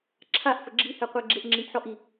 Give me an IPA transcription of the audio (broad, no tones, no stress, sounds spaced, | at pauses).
ǁʰ a ʔ f ə ɡ͡ǁ i h ɛ qʷ ɛ ɡ͡ǁ e ʔ ŋ͡ǁ i ʔ ħ ɔ ʔ i